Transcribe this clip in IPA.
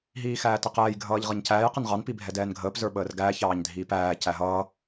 ɦ iː x æː t ʌ q ɛː j ɡʱ ʌː ʎ ʁ ʌ ɲ c æː j q ɪ n ʁ ɑ n p i bʱ ɛ d ɛː n ɡʱ əː p z ə˞ ɓ əː r ɡ æː ç ɑː ɲ dʱ iː p æː c æ ɦ ʌː

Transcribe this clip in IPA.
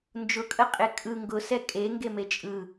n d͡ʒ ʊ kʼ ə qʼ e kʼ ɯ ŋ ɡ ʊ s ɛ kʼ e ŋ ɡ e m e t͡ʃʼ ɯ

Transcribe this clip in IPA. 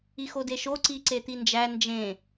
i x o d e ʃ o ǀ i ǀ e t̪ i n d͡ʒ æ n d͡ʒ ẽ

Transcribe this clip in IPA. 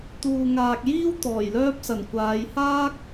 t̪ uː˨ ŋ aː˨ k̚ j iː˥ w t̪ ɔː˨˩ j l œː˧ p̚ s ɐ˨˩ n kʷ aː˨˧ j h aː˥ k̚

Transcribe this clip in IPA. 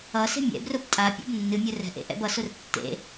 ʌ s e̤ mʲ ɛ̰ b r ʊ b tʼ a pʲ o̰ b nː ɨ mʲ ʊ r ɛ̤ ʔ ḛ ʔ ɛ̰ b ʌ s ʊ r tː ḛ

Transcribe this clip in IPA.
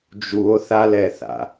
d͡ʒ u o̯ θ a l ɛ θ a̰

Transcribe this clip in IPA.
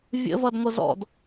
vʲ ə̰ v ʌ d ŋʷ ɤ z ɔ̰ d

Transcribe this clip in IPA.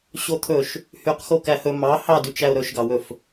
ɕ o t̪ʰ ɵ ʃ | h y q x o k æ h ɵ m ɑ h ɑ d y t͡ʃ æ ʊ̯ ɾ ɵ ʃ ɡ ɑ w ɵ f

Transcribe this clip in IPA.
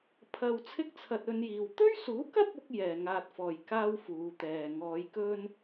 pʰ ɐ˧ w t͡sʰ ɪ˥ k̚ t͡sʰ ɐ˧ t̚ ɵ˧ n j iː˨ w t̪ ɵ˥ ɥ s uː˨˥ k ɐ˥ p̚ ʊ˥ k̚ j ɛː˨ ŋ aː˧ t̚ f ɔː˨ j k aː˥ w f uː˨˧ t̪ ɛː˨ ŋ ɔː˨˧ j k ɵ˥ n

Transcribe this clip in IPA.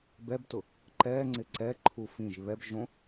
b ɛ b t ʊ | ǃ ɛ ŋ͡ǀ ɪ ǀ ɛ ǃʰ u f ĩ ʒ β ɛ b ʒ õ

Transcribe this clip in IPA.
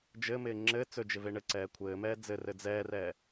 d͡ʒ ɘ m ɪː ŋ͡ǁ ɘ t͡s ɵ d͡ʒ ɪ v e ɳ ɘ ǀ ɛː kʷʰ ɘː m ɛː d͡z ɘ r ɘ d͡z ɛː r ɛ

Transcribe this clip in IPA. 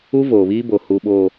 u˦ v oː˨ β iː˦ b o˨ h u˨ ɓ oː˨

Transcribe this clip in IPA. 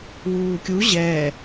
w uː kʲ u ʑ ɛː

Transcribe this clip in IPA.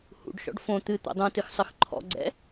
h ṵ ɖ ʃ ɔ̰ ɖ f õ t̪ ɨ t̪ o̰ dˤ ũ t ɨ x sˤ ɨ x ǃʰ ɔ̰ ɡ͡ǀ ɛ̰

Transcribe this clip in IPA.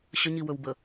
ɕ ə ɲ i w ɵ w b ə

